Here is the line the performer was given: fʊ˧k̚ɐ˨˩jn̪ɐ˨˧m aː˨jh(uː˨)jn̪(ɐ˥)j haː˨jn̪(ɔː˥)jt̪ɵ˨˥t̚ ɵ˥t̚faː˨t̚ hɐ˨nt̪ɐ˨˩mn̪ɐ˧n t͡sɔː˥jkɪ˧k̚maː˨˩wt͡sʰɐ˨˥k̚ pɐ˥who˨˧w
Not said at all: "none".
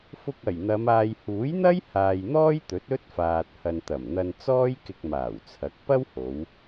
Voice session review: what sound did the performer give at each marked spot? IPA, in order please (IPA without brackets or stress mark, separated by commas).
uː˨˥, ɐ˥, ɔː˥